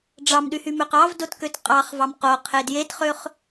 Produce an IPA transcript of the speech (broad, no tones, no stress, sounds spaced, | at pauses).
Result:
ɖ͡ʐ ɑ m ɗ y h y m ø q ɑ v d o t k ø t qʼ ɑ χ v ɑ m q o qʰ e d j e t χ ø χ